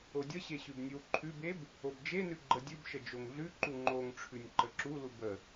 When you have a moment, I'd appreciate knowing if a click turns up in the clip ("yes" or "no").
yes